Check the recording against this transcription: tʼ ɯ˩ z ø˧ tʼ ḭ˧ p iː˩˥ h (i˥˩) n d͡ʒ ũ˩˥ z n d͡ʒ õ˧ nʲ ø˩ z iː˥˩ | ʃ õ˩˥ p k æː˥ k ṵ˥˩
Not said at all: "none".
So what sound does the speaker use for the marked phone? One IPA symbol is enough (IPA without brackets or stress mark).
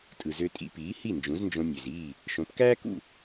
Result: i˥˩